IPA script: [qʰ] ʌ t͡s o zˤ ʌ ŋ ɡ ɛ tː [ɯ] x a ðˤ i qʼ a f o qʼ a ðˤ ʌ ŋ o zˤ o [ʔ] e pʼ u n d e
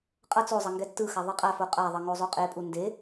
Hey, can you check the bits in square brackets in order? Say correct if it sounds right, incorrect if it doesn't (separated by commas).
incorrect, correct, incorrect